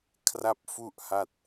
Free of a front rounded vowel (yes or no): yes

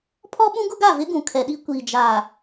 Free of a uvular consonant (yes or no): yes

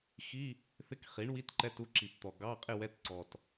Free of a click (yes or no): no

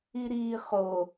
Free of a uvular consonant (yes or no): no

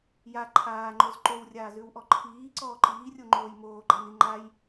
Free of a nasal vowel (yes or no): yes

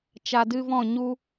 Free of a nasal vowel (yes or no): no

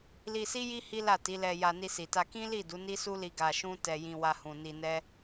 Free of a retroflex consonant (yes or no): yes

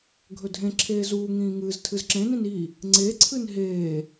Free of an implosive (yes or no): yes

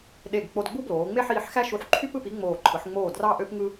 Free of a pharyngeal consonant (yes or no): no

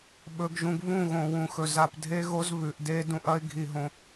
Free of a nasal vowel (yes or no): no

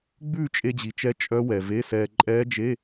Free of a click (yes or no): no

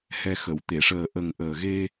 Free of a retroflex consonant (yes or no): no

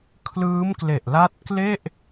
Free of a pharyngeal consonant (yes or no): yes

